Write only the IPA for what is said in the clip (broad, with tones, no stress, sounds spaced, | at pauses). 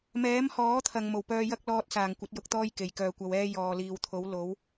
m ɛː˨˥ m h ɔː˨˥ t̪ʰ ɐ˨ ŋ m o˨˩ w p œː˧ j ɐ˥ k̚ l ɔː˧ t̚ s aː˨˩ ŋ kʷ ɐ˨˥ t̚ j ʊ˨˥ k̚ t̪ ɔː˥ j k e˨ j k œː˧ kʷ ɐ˧ w ɛː˥ j ɔː˨ l iː˨ w t̪ʰ o˨˥ w l o˨˥ w